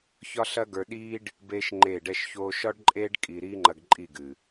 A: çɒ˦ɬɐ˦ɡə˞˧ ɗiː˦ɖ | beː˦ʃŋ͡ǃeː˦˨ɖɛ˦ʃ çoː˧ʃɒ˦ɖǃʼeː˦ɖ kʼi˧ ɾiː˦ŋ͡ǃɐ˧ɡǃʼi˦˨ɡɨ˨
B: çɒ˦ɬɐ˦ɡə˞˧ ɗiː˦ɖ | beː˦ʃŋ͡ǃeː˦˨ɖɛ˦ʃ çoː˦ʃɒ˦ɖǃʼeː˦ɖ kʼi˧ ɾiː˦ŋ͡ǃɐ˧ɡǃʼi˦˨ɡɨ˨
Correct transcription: A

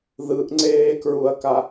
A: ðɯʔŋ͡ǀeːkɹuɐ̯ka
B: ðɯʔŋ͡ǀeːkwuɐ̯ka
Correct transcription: A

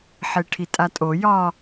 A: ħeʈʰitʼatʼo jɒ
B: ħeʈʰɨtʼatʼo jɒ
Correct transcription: A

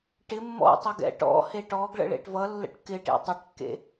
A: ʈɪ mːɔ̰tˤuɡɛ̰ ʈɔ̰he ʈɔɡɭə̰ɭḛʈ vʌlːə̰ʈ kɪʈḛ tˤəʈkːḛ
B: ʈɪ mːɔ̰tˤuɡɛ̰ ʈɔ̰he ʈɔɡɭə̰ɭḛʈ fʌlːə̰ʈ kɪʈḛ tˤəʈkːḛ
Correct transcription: A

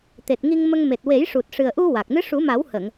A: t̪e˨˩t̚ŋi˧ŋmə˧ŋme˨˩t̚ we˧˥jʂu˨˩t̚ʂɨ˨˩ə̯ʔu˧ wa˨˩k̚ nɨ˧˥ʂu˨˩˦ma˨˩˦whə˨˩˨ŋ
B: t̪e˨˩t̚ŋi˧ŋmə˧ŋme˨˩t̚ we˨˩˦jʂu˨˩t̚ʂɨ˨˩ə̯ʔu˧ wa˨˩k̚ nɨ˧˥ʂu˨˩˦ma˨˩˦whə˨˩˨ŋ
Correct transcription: B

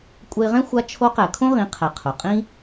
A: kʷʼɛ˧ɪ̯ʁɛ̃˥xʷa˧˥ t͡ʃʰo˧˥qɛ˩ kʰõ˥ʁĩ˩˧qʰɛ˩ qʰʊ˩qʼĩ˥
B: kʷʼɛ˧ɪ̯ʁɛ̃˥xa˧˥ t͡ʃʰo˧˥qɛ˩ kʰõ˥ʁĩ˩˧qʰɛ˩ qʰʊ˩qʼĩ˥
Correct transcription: A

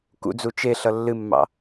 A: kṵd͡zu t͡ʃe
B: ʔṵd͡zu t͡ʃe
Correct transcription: A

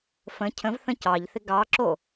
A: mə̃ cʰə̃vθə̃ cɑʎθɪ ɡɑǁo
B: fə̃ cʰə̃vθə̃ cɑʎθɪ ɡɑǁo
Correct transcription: B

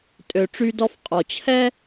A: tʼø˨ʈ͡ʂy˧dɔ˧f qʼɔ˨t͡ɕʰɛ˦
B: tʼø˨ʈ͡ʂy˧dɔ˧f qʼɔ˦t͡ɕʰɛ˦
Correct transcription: A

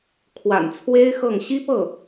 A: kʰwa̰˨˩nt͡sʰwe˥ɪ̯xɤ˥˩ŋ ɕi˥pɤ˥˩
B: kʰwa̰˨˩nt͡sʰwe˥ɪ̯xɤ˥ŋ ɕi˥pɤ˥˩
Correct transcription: A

